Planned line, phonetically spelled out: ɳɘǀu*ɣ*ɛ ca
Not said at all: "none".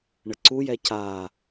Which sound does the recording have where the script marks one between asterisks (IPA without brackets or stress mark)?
j